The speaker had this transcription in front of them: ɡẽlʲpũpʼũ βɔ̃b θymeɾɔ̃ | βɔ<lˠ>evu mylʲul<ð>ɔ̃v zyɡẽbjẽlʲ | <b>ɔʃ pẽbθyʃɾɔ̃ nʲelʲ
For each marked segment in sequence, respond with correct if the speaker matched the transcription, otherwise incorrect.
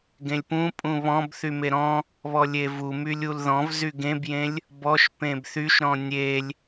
incorrect: lʲ, correct, correct

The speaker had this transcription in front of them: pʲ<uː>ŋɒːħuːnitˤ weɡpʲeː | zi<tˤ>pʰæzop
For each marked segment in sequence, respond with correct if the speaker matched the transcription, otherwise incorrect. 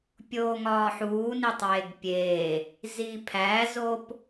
incorrect: oː, incorrect: none

